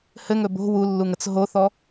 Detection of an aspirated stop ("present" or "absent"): absent